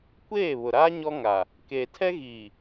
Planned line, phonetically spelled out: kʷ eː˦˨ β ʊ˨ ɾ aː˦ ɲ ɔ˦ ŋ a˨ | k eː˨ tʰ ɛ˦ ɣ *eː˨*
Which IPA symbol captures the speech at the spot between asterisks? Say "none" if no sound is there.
iː˨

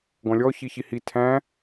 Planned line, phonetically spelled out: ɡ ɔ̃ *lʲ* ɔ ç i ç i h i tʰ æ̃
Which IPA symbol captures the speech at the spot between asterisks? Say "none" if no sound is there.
lʲ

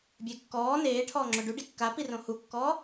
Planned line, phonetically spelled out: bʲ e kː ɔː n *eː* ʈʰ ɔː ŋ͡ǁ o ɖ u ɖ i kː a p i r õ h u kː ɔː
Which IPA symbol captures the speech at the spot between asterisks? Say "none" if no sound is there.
eː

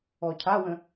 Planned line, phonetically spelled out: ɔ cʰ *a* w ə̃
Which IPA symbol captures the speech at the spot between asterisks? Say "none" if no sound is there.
a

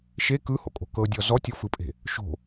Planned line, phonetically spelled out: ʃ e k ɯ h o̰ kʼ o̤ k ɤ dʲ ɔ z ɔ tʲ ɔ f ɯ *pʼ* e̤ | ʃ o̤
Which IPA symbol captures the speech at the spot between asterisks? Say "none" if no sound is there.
pʼ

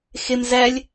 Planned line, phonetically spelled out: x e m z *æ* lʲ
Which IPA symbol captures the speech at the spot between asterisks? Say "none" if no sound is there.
æ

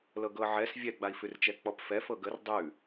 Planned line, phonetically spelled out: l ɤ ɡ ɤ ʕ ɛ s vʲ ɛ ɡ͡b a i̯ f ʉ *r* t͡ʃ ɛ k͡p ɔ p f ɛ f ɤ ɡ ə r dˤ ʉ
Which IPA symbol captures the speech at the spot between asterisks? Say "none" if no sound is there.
r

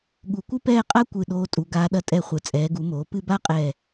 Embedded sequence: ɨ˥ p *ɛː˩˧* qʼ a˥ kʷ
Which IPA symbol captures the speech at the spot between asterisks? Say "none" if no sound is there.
ɛː˥˧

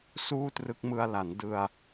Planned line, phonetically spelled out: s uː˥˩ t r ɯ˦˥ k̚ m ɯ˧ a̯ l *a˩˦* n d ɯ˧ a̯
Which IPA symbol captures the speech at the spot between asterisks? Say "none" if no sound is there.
a˩˦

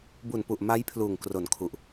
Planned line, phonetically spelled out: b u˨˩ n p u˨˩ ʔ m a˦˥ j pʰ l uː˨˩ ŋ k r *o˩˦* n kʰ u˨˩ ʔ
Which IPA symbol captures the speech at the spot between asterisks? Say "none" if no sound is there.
o˩˦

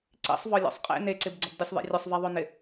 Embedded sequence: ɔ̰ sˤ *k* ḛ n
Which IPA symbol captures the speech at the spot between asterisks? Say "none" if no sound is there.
qʼ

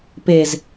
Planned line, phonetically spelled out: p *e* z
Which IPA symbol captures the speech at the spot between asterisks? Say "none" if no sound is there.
e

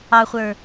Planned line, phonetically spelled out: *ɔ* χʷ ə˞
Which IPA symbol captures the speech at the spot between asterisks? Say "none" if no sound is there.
ɑ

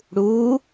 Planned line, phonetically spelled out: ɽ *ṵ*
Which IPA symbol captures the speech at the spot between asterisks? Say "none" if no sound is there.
u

